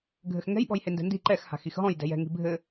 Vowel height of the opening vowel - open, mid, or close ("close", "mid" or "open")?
mid